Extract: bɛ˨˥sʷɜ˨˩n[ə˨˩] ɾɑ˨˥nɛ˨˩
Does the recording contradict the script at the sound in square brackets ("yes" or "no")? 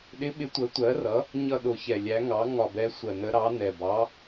yes